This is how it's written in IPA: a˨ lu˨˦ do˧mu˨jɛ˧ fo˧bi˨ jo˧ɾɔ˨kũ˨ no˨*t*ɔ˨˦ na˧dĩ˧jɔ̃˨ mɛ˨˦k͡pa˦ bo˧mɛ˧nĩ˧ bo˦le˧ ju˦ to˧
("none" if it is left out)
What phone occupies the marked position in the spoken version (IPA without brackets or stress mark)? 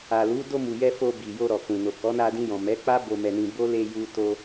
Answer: k